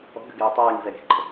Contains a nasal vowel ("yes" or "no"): no